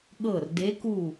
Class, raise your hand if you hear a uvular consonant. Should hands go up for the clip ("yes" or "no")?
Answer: no